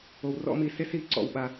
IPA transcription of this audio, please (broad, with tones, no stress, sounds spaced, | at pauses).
o˧ w r ɔ̰˦ m i˧ s e˦ s i˧ ǀ ɔ̰˧ w ɓ a˧